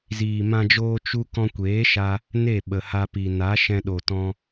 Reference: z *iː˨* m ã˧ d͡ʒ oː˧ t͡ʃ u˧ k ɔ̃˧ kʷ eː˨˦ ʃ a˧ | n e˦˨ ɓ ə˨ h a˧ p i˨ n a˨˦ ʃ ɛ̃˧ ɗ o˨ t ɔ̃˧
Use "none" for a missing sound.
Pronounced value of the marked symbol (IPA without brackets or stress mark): iː˨